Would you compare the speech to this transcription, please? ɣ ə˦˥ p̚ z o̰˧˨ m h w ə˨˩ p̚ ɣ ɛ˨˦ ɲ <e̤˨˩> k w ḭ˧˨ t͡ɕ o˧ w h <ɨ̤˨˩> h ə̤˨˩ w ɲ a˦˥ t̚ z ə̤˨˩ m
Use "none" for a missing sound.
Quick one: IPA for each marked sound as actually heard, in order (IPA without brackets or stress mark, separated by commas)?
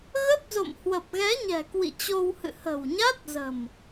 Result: ɛ̤˨˩, ɨ̰˧˨